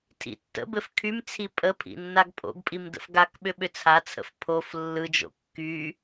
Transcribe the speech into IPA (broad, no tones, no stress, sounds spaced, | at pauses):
tʰ ḭ tː ə̰ b ɘ f kʰ y m t͡sʰ i pʼ ə pʰ ḭ nː a ɡ pʼ o̰ ɡ pʼ i m d ə̰ f ɡ a k ɓ ʏ ɓ ʏ t͡sʰ a t͡sʰ ə̰ f pʰ o f lː ɯ d͡ʒ o̰ kː y